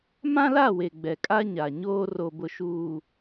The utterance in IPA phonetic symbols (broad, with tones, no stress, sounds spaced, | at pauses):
m ã˦ l a˦˨ w e˨ ɡ͡b ɛ˨ kʼ a˦ ɲ a˨ ɲ oː˦ r o˨ b ʊ˨ ʃ uː˨